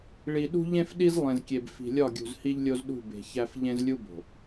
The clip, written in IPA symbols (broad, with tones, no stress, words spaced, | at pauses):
ɭi˨ɗṳ˦ʎẽ˦fɗi˦z lˠẽ˨zkʲe˨b fi̤˨lʲɒ˦˨ɡʲṳ˨z hi˦ʎlʲo˦zɗṳ˦˨ be̤˨çæ˦f ʎẽ˦zlʲu˦bo̤˨